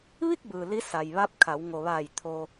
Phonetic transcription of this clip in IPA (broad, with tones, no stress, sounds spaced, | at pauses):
ʋ i˥˨ k̚ b ɯː˩ l i˧˥ s a˩ j ʋ a˧˥ p̚ kʰ a˩˧ w ŋ o˩ ʋ aː˧˩ j t̪ʰ o˧